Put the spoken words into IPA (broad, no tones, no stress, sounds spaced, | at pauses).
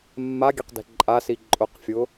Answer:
mː a ɡʲ ɛ q d ɛ̤ ǃʼ a s i ǃʼ ʊ q fʲ ʊ